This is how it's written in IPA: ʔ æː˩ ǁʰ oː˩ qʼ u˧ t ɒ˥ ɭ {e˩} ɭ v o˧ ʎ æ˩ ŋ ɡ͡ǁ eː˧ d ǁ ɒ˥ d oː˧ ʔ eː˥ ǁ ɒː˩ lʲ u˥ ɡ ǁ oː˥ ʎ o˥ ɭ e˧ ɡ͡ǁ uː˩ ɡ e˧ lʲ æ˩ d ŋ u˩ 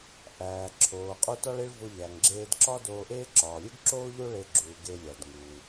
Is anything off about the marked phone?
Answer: yes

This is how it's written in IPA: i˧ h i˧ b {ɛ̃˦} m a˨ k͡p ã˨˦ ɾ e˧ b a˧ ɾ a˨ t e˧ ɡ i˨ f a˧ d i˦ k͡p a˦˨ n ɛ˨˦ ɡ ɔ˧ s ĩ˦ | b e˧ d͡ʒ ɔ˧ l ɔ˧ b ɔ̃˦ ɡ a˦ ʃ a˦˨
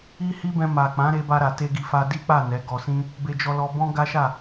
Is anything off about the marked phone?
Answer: yes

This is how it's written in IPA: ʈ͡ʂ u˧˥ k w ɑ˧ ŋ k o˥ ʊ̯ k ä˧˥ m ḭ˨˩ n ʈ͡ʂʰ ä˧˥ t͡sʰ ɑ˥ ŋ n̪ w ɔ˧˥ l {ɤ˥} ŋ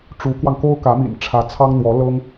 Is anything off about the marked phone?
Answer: no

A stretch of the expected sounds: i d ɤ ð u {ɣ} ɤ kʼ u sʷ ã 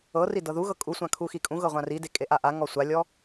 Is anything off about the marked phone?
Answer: no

